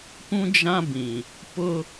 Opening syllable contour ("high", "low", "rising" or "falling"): high